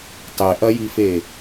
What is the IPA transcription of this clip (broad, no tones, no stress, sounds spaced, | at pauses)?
tˤ e ʔ ɐ j i f e